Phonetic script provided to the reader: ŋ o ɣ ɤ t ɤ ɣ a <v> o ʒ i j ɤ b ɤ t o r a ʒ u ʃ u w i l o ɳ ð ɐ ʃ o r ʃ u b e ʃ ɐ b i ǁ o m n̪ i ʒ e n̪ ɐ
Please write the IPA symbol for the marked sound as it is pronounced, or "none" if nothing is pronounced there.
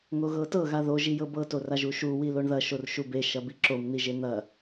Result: ð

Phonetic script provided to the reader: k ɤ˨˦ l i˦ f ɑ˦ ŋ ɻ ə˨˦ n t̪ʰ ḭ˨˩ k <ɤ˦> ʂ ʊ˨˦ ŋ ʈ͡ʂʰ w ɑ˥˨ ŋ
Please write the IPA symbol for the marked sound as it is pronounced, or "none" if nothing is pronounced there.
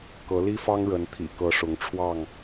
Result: ɤ˨˦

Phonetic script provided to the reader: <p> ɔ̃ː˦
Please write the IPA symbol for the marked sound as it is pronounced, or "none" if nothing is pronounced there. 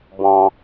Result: b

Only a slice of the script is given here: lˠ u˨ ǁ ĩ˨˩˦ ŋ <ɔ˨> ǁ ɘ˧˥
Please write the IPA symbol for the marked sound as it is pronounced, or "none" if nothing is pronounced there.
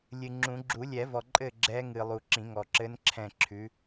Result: ɔ˨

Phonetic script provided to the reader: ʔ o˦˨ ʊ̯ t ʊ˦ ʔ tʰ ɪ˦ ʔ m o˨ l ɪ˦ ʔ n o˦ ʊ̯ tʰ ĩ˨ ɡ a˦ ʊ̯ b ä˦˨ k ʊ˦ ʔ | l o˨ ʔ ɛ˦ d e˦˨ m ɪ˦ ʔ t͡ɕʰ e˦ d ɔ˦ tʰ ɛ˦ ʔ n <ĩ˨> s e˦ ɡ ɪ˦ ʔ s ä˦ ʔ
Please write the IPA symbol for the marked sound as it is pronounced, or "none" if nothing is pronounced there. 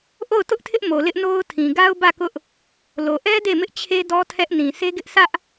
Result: ĩ˨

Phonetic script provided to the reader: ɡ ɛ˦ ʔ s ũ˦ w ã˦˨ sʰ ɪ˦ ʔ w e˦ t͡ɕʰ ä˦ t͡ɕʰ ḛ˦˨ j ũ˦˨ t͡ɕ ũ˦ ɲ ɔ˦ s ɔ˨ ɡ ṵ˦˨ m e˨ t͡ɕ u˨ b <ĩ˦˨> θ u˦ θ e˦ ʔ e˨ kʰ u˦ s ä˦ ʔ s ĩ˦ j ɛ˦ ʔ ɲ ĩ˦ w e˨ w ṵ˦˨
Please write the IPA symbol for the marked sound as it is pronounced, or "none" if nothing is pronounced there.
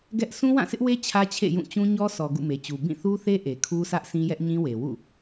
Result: ĩ˦˨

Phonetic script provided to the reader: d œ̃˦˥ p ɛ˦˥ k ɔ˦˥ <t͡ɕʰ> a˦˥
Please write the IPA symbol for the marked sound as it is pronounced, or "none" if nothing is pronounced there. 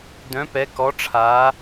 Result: ʈ͡ʂʰ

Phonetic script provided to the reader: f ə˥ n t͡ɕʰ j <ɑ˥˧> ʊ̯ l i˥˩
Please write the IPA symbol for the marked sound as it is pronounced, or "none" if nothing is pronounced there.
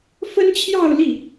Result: ɑ˥˧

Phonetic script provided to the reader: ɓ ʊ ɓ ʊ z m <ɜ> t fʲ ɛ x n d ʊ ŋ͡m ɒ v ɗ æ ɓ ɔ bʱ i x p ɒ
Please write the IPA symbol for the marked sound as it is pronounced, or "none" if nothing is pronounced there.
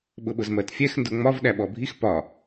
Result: ɜ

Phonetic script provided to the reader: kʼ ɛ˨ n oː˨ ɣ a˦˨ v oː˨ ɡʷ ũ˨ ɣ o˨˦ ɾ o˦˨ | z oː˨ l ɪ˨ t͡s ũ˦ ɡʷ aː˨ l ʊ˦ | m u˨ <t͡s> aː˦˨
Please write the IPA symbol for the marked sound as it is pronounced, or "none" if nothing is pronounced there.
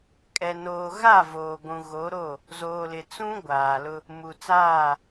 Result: t͡s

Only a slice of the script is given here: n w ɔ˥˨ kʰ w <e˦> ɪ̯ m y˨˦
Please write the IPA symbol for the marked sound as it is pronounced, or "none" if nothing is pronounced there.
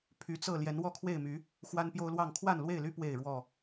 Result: e˥˨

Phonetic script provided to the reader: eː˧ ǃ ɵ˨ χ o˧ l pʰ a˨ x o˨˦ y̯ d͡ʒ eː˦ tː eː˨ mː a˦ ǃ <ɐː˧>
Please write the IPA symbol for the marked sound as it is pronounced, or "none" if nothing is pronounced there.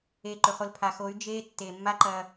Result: ɐː˧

